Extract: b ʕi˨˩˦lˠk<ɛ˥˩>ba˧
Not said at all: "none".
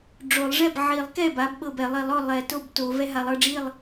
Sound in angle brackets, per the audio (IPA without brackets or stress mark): ɛ˥˩